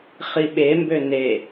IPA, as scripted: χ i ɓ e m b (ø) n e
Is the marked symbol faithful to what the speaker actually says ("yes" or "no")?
yes